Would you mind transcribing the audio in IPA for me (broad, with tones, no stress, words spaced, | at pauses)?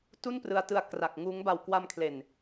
tu˥˩nprɯ˧a̯tɯ˧a̯ kra˨˩k̚ŋuː˦˥ŋ ba˨˩wkwa˧mkʰle˨˩n